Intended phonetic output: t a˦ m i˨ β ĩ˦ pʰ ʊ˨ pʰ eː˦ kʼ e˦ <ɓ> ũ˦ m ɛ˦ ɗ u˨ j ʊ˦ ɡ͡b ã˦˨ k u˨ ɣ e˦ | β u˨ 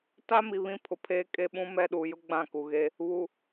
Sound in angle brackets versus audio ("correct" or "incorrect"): correct